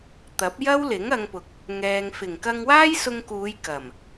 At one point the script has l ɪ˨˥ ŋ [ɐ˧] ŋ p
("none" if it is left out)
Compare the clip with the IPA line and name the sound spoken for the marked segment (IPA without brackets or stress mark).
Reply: ɐ˧